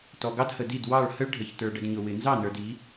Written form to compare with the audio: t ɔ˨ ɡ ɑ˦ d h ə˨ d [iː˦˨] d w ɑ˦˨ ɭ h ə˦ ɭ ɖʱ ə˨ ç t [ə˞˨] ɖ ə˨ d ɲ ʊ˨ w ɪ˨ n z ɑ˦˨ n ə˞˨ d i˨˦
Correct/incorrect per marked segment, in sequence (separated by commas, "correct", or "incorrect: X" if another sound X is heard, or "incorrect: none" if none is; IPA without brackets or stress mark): incorrect: i˦˨, correct